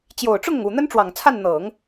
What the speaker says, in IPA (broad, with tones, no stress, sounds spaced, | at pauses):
t͡ɕ j o˨˩ ʊ̯ ʈ͡ʂ ʊ˥˩ ŋ ʊ˩ ŋ u˨˩ n̪ ə˥ n ʈ͡ʂ w ɑ˨˩ ŋ t͡sʰ a˥˩ n n̪ ɤ˨˩˦ ŋ